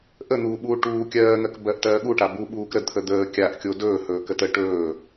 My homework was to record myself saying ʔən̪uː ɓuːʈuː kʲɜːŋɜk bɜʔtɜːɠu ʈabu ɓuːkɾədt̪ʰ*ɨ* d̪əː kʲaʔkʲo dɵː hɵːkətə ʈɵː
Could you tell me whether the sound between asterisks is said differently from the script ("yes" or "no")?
yes